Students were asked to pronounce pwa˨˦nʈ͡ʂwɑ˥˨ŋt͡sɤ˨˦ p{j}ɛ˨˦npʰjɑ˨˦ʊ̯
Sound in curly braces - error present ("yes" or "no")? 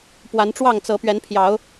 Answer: yes